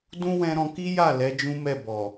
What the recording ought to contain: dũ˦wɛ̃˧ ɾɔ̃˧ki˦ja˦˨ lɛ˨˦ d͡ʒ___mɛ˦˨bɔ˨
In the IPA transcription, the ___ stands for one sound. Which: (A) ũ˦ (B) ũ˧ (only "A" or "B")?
A